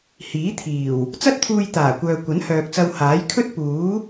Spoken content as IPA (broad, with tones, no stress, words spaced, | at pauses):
hiː˨˥t̪ʰiː˨˩w | t͡sɐ˥t̚t̪ʰuː˧jt̪aː˨˩kʷœː˨ kʷɐ˨˥nhœː˨k̚t͡sɐ˧w haː˨˥j kʰɵ˥t̚ puː˨˥